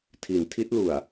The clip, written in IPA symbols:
tʰ i˩˦ n tʰ i˦˥ t̚ l u˨˩ a̯

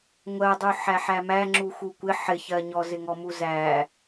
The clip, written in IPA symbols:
ŋʷ ɜ dˤ u ħ æ ħ æ m æ ŋ͡ǁ u x u kʷ ɪ ħ ɪ ç ɜ ɲ ɔ z ɪ ŋ ɔ m u z æ

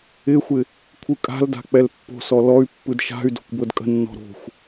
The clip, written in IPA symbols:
ɪ xʷ ɪ | kʷʰ ɯ kʼ a̤ l d a̤ k͡p ɛ l pː o̤ s ɔ l ɔ y̯ pː ɯ d ʃ a̤ y̯ d o̤ kʷ b ɤ d kʼ ə̤ nː ɔ̤ ɾ o̤ xʷ

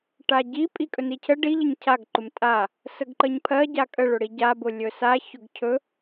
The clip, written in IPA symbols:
ʈ a ɟ i pʼ i kʼ ɵ n i cʰ ə ɖ i ʎ ə ɲ cʰ a ɡ ǃ ʊ m tʼ a | s ə ɡ ǃ ə ɲ pʰ ɜ ɟ a kʼ ə ɭ ɵ ɽ i ɟ a b ʊ lʲ ɵ s a ç ʊ ɡ cʰ ɵ

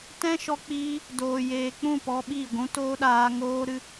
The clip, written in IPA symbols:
t ɛ̃˦ ʃ ɔ˧ k͡p iː˧ | d oː˨ j eː˨ k͡p ũ˦˨ p ɔ˧ ɓ i˦˨ ɡʷ ũ˧ t oː˦ ɗ aː˧ ŋ oː˦ ɾ ɨ˦

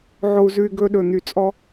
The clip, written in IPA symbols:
ʕ o˧ u̯ z ʉ˧ y̯ ɡ ɵ˧ ɗ ɵ˨˩ n̪ y˨˩ t͡sʼ ɔ˧

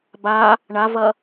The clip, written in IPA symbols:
b a | ɳ a v ɐ

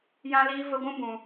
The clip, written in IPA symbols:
j ã˦ l iː˦ v ə˦ ɡʷ ũ˦ b ũ˧

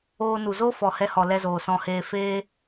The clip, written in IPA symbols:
oː˧ n u˨ z o˦ f ɔ˨ h ɛ˧ h ɔ˨ l ɛ˧ z oː˨ s ɔ̃˧ h eː˧ f eː˦

